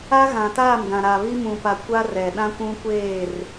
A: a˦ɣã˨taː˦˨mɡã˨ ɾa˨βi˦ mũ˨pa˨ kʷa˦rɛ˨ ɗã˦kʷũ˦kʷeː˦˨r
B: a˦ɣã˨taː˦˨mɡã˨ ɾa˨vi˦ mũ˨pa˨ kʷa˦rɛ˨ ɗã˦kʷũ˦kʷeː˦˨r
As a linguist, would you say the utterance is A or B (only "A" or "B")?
A